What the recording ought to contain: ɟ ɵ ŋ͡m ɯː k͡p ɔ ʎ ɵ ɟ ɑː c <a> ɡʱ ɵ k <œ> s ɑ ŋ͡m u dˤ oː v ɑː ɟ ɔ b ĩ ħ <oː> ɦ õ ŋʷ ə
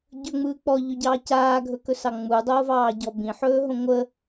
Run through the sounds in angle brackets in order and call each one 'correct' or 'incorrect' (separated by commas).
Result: incorrect, incorrect, incorrect